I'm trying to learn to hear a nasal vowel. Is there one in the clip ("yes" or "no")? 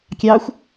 no